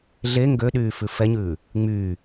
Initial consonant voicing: voiced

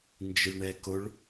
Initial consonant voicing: voiced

